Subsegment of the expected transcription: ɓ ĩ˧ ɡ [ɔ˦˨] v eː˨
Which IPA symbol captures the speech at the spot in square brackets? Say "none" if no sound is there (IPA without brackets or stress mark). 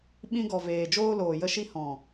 ɔ˨